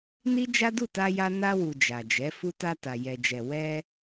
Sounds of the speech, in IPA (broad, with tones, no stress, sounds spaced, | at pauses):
n i˦ d͡ʒ a˦ d u˦˨ t a˧ j a˧ n a˧ w u˨ d͡ʒ a˨ d͡ʒ ɛ˨˦ f u˧ t a˧ t a˨ j ɛ˨ d͡ʒ ɛ˨ w ɛ˧